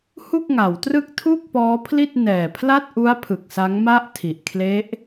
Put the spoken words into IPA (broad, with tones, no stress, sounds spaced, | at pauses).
h u˥˩ k̚ ŋ a˩˦ w t r ɯ˥˩ k̚ tʰ u˥˩ k̚ p ɔː˦˥ pʰ l i˥˩ t̚ n ɛː˨˩ pʰ l a˥˩ t̚ ʔ u˦˥ a̯ pʰ ɯ˨˩ k̚ s a˦˥ ŋ m a˥˩ ʔ tʰ i˨˩ ʔ kʰ l e˦˥ ʔ